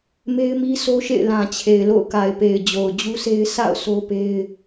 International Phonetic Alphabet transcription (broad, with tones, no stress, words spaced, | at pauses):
me˦ɪ̯mi˦sʰo˦ʃḛ˦˨ɪ̯ lã˨t͡ɕʰe˨ɪ̯ lo̰˦˨ʊ̯ka˨ɪ̯pe˨ɪ̯ d͡ʑo˨ʊ̯d͡ʑu˦se˦ɪ̯ sʰa̰˦˨ʊ̯ so˦pe˦ɪ̯